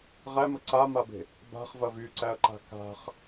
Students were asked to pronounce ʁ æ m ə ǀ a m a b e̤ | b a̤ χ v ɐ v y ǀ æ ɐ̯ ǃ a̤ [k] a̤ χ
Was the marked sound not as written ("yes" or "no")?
no